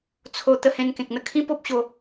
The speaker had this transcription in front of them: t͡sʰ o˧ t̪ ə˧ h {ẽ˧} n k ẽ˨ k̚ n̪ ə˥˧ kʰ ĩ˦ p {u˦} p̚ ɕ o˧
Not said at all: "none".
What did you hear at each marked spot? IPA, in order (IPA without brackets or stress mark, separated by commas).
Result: ẽ˧, o˦